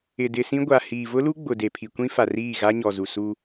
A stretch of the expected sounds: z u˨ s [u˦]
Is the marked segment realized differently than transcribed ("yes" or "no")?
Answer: no